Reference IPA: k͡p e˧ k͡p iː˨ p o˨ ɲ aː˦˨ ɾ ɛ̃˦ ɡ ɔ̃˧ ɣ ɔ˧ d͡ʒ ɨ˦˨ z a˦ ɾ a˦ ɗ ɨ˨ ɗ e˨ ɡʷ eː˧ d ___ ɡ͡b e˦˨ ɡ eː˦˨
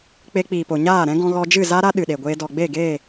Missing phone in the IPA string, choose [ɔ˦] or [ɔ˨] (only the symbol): ɔ˨